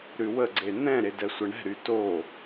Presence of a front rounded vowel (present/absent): present